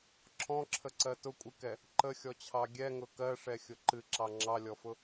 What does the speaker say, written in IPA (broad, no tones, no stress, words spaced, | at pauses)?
ǁʰɔ̃ǁʰəǀɜ tʊkʷʼɨkɛ | ǃəxʲɔt͡ɕʰɑ ɡʲɛŋʊ kɜʂɛxʲʊ ǃɨǁɑ ŋ͡ǁɑlʲɔfʊ